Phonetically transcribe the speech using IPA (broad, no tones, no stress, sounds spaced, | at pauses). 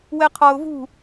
w ɛ qʰ ɒ ʊ̯ v ṳ